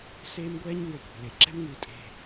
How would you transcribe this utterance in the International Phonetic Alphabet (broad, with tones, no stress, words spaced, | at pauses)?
seː˦mɡʷɛː˦ɲ ŋo˨ kʷe̤˩le˩ ǁɛ̤˥mŋɨː˩ tʼe̤˨